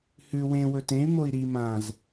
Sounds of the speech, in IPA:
h ʉ w ẽ w ɵ t ẽ y̯ m o i̯ ɾ i m ã z

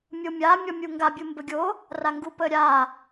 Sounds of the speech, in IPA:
mʲ o mʲ a mʲ ɔ mʲ u ŋ ɡ a bʲ u m b ə ɡʲ o | r a ŋ ɡ u p ə ɾʲ a

